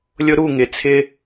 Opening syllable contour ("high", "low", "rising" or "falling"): high